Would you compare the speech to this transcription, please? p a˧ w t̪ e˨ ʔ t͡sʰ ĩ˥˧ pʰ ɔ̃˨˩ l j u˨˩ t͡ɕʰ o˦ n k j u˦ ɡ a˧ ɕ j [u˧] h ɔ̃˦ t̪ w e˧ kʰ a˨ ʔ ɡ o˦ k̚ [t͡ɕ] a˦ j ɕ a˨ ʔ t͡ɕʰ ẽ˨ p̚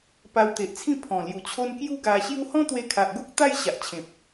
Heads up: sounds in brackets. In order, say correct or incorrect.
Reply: incorrect: u˦, incorrect: t̪

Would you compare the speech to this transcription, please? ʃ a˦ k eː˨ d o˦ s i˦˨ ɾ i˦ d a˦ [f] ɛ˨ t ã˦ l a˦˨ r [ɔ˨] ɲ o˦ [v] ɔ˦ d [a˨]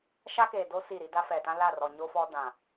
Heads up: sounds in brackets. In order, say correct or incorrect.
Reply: correct, correct, incorrect: f, incorrect: ã˨

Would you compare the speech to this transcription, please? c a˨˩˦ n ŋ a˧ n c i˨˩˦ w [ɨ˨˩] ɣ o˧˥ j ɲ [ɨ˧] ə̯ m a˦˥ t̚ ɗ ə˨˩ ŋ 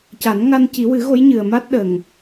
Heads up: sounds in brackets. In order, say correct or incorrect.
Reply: incorrect: ɨ˨˩˦, incorrect: ɨ˨˩

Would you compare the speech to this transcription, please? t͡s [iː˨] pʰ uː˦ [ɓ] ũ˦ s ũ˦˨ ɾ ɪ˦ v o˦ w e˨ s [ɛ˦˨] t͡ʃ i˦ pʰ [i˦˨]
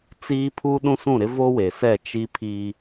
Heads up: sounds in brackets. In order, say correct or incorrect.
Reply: incorrect: iː˦, incorrect: ɗ, correct, incorrect: i˦

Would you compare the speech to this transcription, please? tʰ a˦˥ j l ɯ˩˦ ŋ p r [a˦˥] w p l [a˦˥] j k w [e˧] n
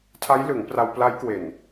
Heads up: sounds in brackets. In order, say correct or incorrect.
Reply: incorrect: a˧, correct, incorrect: e˨˩

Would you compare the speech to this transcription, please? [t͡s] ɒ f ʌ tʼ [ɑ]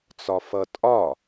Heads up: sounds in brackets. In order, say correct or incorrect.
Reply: correct, incorrect: ɒ

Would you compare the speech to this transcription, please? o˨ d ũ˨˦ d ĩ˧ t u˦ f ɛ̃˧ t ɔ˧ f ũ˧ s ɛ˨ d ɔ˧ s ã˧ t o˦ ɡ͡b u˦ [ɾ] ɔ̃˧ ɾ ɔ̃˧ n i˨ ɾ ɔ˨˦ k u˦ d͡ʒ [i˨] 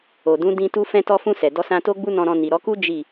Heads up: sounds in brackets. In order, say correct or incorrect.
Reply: incorrect: n, incorrect: i˦˨

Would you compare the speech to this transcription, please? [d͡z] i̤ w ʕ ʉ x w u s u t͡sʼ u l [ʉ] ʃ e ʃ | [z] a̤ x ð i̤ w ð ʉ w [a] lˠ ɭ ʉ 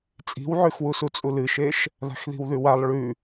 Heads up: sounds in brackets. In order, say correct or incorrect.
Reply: incorrect: t͡sʼ, incorrect: ɨ, incorrect: ð, correct

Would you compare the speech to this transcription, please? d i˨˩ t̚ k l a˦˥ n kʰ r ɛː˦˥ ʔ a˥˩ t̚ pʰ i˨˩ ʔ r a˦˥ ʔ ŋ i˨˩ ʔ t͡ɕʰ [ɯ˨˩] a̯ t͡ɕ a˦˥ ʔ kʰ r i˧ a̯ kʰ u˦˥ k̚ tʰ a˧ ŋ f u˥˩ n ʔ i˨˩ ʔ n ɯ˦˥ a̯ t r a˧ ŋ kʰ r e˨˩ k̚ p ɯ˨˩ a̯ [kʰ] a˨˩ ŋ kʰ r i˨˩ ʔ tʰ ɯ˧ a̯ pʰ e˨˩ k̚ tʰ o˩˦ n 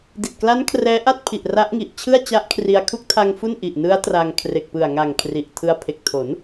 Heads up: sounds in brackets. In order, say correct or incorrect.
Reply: incorrect: ɯ˥˩, incorrect: ŋ

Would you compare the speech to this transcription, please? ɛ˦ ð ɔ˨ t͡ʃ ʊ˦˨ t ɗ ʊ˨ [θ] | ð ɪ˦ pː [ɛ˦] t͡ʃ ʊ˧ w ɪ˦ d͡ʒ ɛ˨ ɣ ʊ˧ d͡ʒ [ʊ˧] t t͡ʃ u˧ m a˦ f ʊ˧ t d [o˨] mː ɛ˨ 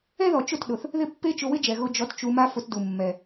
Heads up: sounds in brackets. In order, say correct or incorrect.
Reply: correct, incorrect: e˦, incorrect: ɔ˧, incorrect: u˨

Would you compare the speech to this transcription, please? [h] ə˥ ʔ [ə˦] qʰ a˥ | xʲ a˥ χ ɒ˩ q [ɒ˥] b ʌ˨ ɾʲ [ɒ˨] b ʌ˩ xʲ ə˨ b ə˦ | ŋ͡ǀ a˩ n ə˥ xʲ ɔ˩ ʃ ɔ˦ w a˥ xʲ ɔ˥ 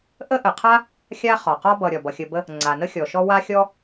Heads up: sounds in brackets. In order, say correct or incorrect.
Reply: incorrect: ʔ, incorrect: ə˩, correct, incorrect: ɒ˩

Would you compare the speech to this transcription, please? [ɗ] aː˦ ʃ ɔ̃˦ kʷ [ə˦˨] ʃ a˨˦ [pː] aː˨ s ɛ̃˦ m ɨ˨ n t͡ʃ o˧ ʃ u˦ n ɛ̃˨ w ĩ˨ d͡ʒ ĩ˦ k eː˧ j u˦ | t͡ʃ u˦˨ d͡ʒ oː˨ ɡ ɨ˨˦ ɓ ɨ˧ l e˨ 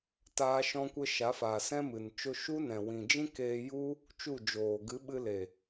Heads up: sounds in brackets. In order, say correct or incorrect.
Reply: incorrect: t, incorrect: ə˦, incorrect: f

